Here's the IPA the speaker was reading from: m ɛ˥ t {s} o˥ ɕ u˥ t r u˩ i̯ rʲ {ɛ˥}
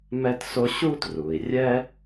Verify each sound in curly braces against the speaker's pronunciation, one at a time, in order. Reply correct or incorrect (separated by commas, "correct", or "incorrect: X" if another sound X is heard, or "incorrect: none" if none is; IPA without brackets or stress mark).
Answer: correct, correct